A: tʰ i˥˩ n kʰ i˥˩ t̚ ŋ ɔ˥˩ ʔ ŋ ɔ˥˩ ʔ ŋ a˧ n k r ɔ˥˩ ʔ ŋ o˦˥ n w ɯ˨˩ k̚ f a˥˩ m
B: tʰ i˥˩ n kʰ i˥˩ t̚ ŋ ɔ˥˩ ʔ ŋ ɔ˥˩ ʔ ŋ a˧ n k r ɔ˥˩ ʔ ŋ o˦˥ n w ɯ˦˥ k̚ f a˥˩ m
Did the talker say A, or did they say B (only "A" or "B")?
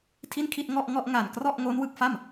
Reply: B